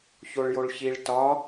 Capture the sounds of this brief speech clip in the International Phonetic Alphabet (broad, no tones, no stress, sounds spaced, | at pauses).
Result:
ç o ɭ j o ɭ ç i ɭ t ɒ